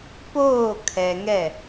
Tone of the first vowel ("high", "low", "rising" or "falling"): falling